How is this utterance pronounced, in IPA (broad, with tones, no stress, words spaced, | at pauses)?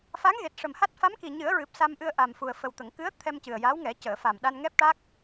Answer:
fa˧˥ŋɣe˨˩t̚ʂə˨˩mha˦˥t̚ fa˧˥mki˨˩ɲɨ˨˩˦ə̯ɹɨ˨˩p̚ sa˧mʔɨ˧ə̯ʔa˨˩mfu˨˩ə̯ fə˨˩wt̪ə˨˩˨ŋkɨ˧˥ə̯ t̪ʰɛ˧mcɨ˨˩ə̯ja˧˥wŋɛ˨˩˦ cəː˨˩˨fa˨˩mɗa˧n ŋɛ˦˥p̚ʈa˦˥k̚